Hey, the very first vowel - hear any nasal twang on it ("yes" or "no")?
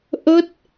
no